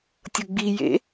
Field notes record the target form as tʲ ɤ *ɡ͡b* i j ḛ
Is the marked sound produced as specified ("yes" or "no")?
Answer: yes